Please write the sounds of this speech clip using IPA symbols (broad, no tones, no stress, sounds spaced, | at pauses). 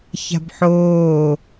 ç a̤ b ħ oː